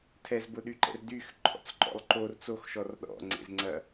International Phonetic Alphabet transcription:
tʰ ɛ z b ʊ ɗ y ǃ ɛ̰ r d y x ǃʰ ɔ̰ t͡s ǃ ɔ̰ lˠ ǃ o r t͡s o x ʃ ɔ r ɗ ɔ̰ ŋ͡ǀ ḛ z ŋ͡ǀ ɐ

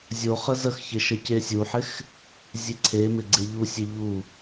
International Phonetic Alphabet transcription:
zʲ o χ ə z ə x ç ɪ ʃ ə c e sʲ u ħ ɪ x | zʲ e ǀʰ e m ɪ ɡ͡ǀ e ʎ u sʲ e ʎ u

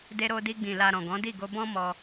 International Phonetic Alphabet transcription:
d e˧ ɾ o˧ d i˧ ɡ͡b ĩ˨ l a˨ ɾ ɔ̃˨ ɡ ɔ̃˨˦ d i˦˨ ɡ o˧ b ɔ̃˦ m ɔ˧

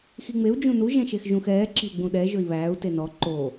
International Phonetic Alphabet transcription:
x i ŋ͡m e u̯ d͡ʒ ũ n u ʒ ɛ̃ ʃ e x ʒ ũ x ɛː ǁ e̤ u̯ ɡ͡b ũ ɗ ɛ ʒ ɵ i̯ β æː u̯ t e n ɔ ǃ o

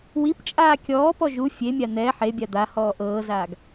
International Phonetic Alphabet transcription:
w i p t͡ʃʼ aː kʲ ɔː p ɔ ʒ u fʲ e mʲ a n̪ ɛ ħ e bʲ a d̪ a h ɔː ʔ ɤː z aː ɡ

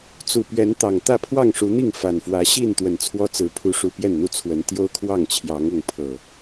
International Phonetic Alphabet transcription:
t͡s u˨˩ p ɥ ɛ˨˦ n t̪ ɑ˨˩ ŋ t̪ ä˥˨ pʰ w ɑ˥˨ ŋ ʂ u˨˦ n̪ i˥˨ ŋ f a˨˩ n f w ä˨˦ ɕ i˥˨ n t̪ w ə˨˩ n t͡sʰ w ɔ˦ t͡s ɹ̩˨˦ pʰ u˨˦ ʂ u˨˩ p j ɛ˥˨ n n̪ u˦ t͡sʰ w ə˨˦ n t̪ j o˦ ʊ̯ kʰ w ɑ˥˨ ŋ t͡ɕʰ j ɑ˨˦ ŋ ʊ˥˨ ŋ pʰ ɤ˨˩

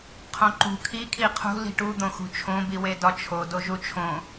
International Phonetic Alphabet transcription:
qʰ õ ǃ ṳ kʰ i kʰ i qʰ ṳ l i̤ ʈ u d̪ õ x ṳ t͡ʃʰ õ b i w e d ɒ t͡ʃʰ o d o ʒ u t͡ʃʰ õ

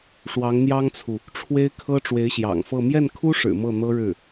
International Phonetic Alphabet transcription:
ʂ w ɑ˧˥ ŋ n̪ j ɑ˥ ŋ t͡sʰ u˨ | ʈ͡ʂʰ w e˥ ɪ̯ kʰ ɤ˥ ʈ͡ʂ w e˧˥ ɪ̯ ɕ j ɑ̰˨˩ ŋ f ɤ˥˧ m j ɛ˥˩ n kʰ u˥ ʂ ɻ̩˨˩ m ɤ˥˩ n̪ ɤ˥ ɻ ɻ̩˥˩

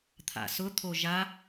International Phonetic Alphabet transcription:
t̪ʰ a̰ s ʊ t̪ʰ o ʒ a

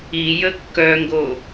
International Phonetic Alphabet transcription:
i j ə kː œ ŋ ɡ o

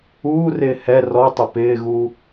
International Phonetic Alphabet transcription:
uː r ɪː h ɛ r ɔ tˤ ɪ p ɪː ɣ uː

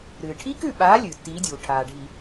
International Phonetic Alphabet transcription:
ɾ ɨː˩ ʈʰ i˦˥ k ʉ˦˨ ɓ aː˨˦ lʲ ɨː˩ tː iː˨˦ dʲ uː˩ ʈʰ aː˩ ɖʱ i˧˩˧

